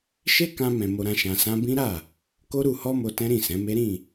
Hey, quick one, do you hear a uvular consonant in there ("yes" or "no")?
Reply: no